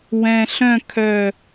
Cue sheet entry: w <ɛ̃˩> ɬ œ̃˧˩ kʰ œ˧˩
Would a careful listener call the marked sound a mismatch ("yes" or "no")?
no